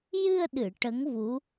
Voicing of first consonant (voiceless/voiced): voiced